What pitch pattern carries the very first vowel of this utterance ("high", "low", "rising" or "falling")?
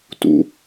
high